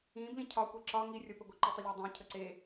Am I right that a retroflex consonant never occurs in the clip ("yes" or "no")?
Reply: yes